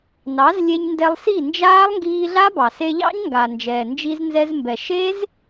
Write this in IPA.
nɑ˨˦zlʲe˧ɲndɛ˧lˠsi˦˨ nd͡ʒaː˦lˠŋɡiː˧ɮa˦ bɑ˨se˧ʎɑ̰˦ɲŋɡa˨ nd͡ʒɛː˨nd͡ʒi˧znzɛ˧zmbɛ˨ ʃe˦z

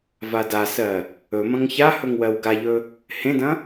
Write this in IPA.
vadasɜ | ɵmɐ̃ŋ çahɵŋ wɜwɡaʎɵ | hẽdɐ̃

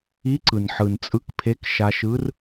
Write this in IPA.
i˧˥ǀɯ˩nħɯ˩n t͡sʼɯ˧˥kpʰe˧˥kʃa˧ʃɯ˧˥r

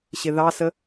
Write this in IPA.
ɕɪðɑsə

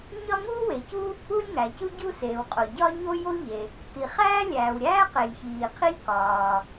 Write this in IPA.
ɲɒ˥ ŋuː˥we˩cu˥ | u˥lʲŋæ˩cu˥ ɟu˥seː˩wqʼo˩ ɟɒ˥ɲo˥ jo˥ ʎe˩ | ti˩χæː˥lʲæː˩wɾʲæː˥ qe˩lʲçiː˩qʰi˥lʲ kɒː˩

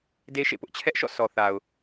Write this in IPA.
de˦ʃḛ˦˨pʊ˦ʔ t͡ɕʰɛ˦ʔʃɔ̰˦˨sɔ˨ θa˨ʊ̯

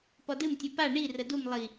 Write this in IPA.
pɔdɨm tʲɨpa ɳi rədum lˠi

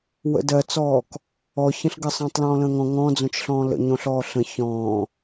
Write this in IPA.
wə̰dɜt͡sɔːk | ɔçə̃ɬɡə sˤə̃ːtˤlɔ̃ːlə̃ːŋɔ̃ ŋɔ̃d͡zõt͡ʃɬɔ̃ː lə̰ɲõɬɔː ɬə̃ çɔ̃ː

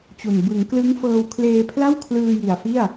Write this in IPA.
t͡ɕu˨˩n bɯ˩˦ŋklɯ˦˥ŋfɤː˧w kʰleː˧pʰla˥˩wkʰlɯː˧ ji˨˩a̯fi˥˩a̯

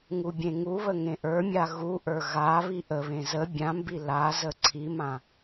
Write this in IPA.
ŋubʲẽŋuβə ŋẽʔə˞mʲa ɣuʔə˞ ɣa βiʔəβẽ zə bʲãmbi lazə ǀʰimã

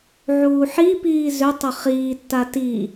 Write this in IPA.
ʕuːħipiː zʏtˤʏ χiːtːa ti

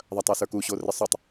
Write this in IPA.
ðˤɐtˤə˞sə˞ku ɕorɪsˤutˤ

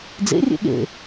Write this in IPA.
d͡zḛ rʲḛɠḛ

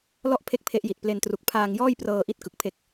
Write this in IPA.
lɔ˥˩ʔpʰe˦˥k̚ pʰe˦˥ʔji˨˩t̚ple˧ntru˨˩k̚ pʰaː˧ŋjɔː˥˩jprɤː˧ʔi˦˥t̚ kɯ˨˩k̚pʰe˦˥k̚

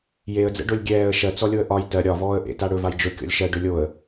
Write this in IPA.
jeə̯d͡zɛ̰ɖolʲ ɡʲɛːə̯ ʃɜt͡sɔlʲoə̯ ʔɒj tɜ ɾʲɒ vɔːə̯ʔḛ taɽɵ vajd͡ʒɵ kʲɔ̰lʲʃɜ ɖɵlʲoə̯

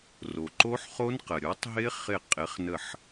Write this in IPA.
ro˩ǃo˦˥ħχo˦˥nqə˩ ɾʲo˨˦tˤɦɪ˦˥ χɪ˧˩qʼɪ˨˦χnə˧˩ħ

